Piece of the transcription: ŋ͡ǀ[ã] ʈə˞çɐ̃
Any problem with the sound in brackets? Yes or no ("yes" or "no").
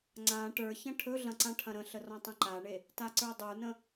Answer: no